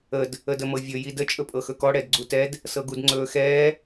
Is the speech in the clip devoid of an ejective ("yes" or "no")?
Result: no